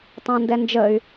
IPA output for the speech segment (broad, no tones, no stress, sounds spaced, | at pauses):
tˤ ɑ̃ n d ɛ n d͡ʒ ə y̯